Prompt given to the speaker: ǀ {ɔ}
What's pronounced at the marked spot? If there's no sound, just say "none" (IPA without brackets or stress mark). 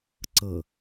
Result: ɤ